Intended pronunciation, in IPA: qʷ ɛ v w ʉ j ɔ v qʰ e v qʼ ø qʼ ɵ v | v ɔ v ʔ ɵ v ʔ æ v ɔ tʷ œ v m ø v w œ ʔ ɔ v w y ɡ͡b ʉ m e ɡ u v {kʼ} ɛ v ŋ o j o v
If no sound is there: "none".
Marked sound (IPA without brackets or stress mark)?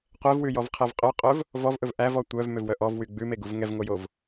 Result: ŋ